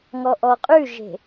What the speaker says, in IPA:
ŋ ɔ ʔ ɔ qʼ ʉ ʒ e̤

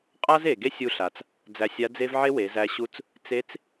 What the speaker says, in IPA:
qʼ a˥ z e˩ ɡ e˥ sʲ u˧ ɬ a˩ t͡s | d͡z æ˧ sʲ a˧˥ d͡z e˥ v ʕ e˥ w e˩˧ z æ˧ ɕ u˧˥ t͡s | t͡s e˧˥ t͡s

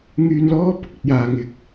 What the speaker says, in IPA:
ŋ yː˧ n l ɔː˥ p ʊ˧ k̚ ɵ˨ t̚ j aː˨ ŋ ɪ˥ k̚

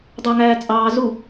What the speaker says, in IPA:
dˤ ɑ ŋ æː t͡sʼ ɑː z u

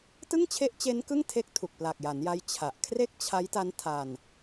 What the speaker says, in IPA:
t ɯ˥˩ ŋ t͡ɕʰ e˦˥ ʔ t͡ɕ e˦˥ n k ɯ˥˩ ŋ tʰ e˦˥ k̚ tʰ u˨˩ k̚ p l a˨˩ k̚ j a˩˦ n j a˦˥ j t͡ɕʰ a˨˩ ʔ kʰ r e˥˩ k̚ t͡ɕʰ a˦˥ j t a˦˥ n tʰ a˧ n

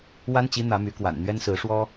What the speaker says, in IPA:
w a˥ n t͡ɕ i˧˥ n̪ ä˧˥ m y˧˥ k w a̰˨˩ n n̪ ɥ ɛ˥ n s ɹ̩˧˥ ʂ w ɔ˥

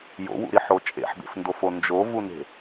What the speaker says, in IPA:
j o̰ w ṵ ɾ i ħ o t͡ʃʼ ḛ ħ b ḛ f n d o f o n d͡ʒ o v u n e̤

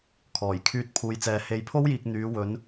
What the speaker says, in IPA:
kʰ ɔː˨˩ j kʰ yː˧ t̚ pʰ uː˨˧ j t͡s ɛː˨ h e˨˧ j pʰ o˥ w j iː˨ k̚ n̪ yː˨˧ w ɵ˨˧ n

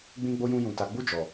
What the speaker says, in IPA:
ɡ͡b ĩ˦ ɡ͡b o˦ j ũ˦ j ũ˧ t a˧ ɡ͡b u˦ d͡ʒ ɔ˧

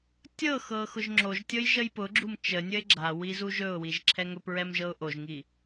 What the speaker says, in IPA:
tʲ ɤ x ɤ x ʊ ʒ ŋ͡ǁ o ʒ tʲ ɤ j ʒ ə j p ʊ ɡ͡ǁ u m t͡ʃ ə nʲ ə ɪ̯ ɡ͡ǁ a w i z u ʒ ɵ ʊ̯ w i ʒ ǁʰ ɛ ŋ ɵ p ɹ ɛ m ʒ ɤ ʊ̯ ʔ o ʒ ŋ i

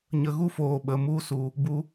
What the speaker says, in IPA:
ɲ ə˨ ɣ u˧ f oː˨ ɓ ə˨ m u˧ s u˨ | b u˧

